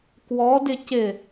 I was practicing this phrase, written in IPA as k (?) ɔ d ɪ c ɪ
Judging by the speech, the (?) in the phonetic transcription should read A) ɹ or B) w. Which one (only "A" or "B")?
B